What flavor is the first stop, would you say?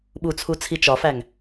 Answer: implosive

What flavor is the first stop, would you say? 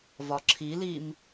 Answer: click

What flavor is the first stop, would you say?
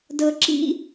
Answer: plain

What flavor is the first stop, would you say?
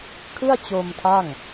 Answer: aspirated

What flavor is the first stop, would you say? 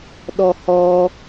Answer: implosive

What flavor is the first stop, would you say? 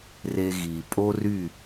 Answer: ejective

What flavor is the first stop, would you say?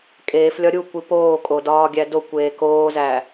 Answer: ejective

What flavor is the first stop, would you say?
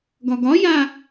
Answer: plain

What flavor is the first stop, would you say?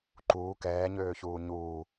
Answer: click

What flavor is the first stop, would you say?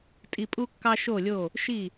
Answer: ejective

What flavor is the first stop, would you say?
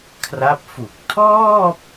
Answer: aspirated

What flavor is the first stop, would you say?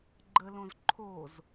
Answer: click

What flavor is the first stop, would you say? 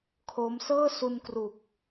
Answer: aspirated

